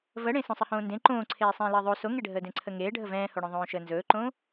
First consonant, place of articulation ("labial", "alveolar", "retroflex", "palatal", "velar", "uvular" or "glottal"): labial